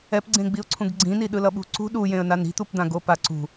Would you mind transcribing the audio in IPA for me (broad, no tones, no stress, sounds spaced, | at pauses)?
ɛ p ɡ͡ǀ ẽ ɡ͡b i ʊ̯ ǀʰ ũ ɡ ɡ͡ǀ ĩ n i ɗ ɯ l ʌ ɓ ṳ ǀ ṳ ɗ u j ẽ ə̯ n a n i̤ t̪ u p d̪ ã ɡ o p a ǀ ṳ